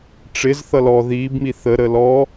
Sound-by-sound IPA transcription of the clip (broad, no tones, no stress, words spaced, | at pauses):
ʈ͡ʂɪz θʌlɔ ðiːbmi θəɾəː lɔ